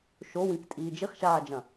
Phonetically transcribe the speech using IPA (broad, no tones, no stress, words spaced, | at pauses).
ʃowĩktʼiː d͡ʒiχʃaːd͡ʒɐ̃